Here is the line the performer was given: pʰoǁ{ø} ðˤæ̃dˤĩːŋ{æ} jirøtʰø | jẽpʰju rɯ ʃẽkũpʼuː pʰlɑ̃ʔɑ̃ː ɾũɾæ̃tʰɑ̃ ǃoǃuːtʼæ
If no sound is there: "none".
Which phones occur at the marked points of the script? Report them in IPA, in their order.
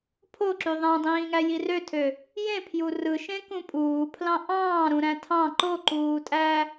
y, æ

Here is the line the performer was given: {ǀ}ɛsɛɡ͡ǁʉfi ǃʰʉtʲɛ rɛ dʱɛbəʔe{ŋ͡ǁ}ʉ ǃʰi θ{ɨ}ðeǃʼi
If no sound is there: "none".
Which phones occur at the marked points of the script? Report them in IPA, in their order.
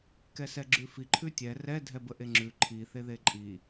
k, ŋ͡ǁ, e

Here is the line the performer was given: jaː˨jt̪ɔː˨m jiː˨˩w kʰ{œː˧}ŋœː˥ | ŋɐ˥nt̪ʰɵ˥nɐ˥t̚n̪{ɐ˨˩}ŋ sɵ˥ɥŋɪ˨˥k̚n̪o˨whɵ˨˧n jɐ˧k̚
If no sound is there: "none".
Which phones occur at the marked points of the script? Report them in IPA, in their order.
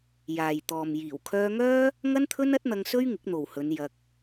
œː˧, ɐ˧

